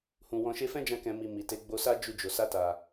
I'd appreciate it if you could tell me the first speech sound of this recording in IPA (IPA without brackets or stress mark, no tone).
h